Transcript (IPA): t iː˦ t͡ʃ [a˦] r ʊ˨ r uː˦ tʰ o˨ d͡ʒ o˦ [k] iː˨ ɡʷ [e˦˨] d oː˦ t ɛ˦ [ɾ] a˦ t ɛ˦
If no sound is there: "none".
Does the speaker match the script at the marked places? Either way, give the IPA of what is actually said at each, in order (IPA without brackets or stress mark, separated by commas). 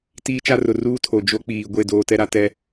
a˦, k͡p, e˦˨, ɾ